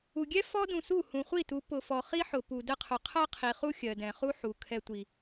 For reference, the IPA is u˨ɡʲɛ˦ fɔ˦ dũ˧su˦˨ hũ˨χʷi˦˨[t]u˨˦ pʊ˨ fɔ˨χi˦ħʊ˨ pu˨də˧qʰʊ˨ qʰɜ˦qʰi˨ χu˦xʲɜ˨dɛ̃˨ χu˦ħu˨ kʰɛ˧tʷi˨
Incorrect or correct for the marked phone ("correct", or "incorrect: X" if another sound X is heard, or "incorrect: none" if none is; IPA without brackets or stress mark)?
correct